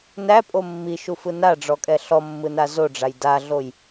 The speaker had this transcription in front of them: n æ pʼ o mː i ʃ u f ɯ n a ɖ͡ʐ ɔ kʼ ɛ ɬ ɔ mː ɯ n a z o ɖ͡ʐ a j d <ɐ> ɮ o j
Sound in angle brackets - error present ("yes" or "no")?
yes